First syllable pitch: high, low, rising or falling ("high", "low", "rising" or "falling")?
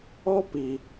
high